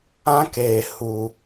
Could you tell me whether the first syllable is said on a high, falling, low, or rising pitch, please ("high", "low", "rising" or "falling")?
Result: high